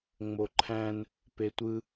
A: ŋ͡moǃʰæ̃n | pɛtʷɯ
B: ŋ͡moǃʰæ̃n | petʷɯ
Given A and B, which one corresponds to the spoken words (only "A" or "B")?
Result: B